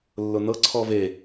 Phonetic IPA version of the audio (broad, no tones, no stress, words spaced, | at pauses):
lːʊnɤǀʰɔ ve